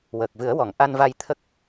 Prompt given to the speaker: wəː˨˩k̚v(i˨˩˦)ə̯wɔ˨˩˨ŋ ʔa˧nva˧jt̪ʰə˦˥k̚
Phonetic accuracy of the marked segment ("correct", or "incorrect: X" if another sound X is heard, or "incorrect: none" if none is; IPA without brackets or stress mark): incorrect: ɨ˨˩˦